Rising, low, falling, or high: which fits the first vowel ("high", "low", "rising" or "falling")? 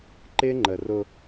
high